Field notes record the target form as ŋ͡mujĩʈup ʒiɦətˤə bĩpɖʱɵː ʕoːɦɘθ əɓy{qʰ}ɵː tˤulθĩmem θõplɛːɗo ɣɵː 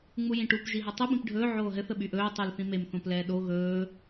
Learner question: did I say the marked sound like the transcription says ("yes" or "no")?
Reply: no